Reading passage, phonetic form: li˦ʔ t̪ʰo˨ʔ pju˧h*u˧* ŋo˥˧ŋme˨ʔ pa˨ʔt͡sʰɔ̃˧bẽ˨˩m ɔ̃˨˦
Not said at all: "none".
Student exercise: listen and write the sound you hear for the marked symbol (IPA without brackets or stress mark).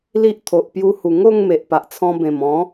u˨˩